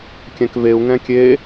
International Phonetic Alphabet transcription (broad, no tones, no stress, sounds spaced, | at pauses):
kʲ ɛ̃ k v e u̯ ŋ ɛ̃ kʲ e